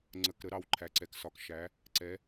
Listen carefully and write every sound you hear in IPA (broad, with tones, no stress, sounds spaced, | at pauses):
ŋ͡ǀ ə˩˧˩ k ɾ ə˩˧ ɾ ɑ˩˧ w ǃʰ æ˩˧ ǀ ɛ˩˧ k s ɒ˩˧ k ʃ æ˩˧ | ǀ ɛ˩˧